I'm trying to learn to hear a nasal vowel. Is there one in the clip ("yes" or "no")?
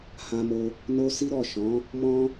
yes